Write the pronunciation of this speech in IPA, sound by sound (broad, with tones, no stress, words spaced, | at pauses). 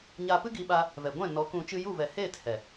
ɲa˧pɨ˦ɡi˧ɓa˧ | vɛ˨ɡʷɛ̃˦˨nɔ˨˦kũ˧ t͡ʃɨ˧ju˦˨vɛ˨heː˦˨t hɛ˨